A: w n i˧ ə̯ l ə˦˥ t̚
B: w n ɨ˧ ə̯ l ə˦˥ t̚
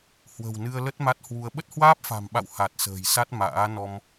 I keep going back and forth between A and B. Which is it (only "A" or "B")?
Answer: B